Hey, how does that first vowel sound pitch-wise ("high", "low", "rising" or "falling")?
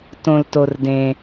low